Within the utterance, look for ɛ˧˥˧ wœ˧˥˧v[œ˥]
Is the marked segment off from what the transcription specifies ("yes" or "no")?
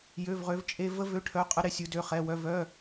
yes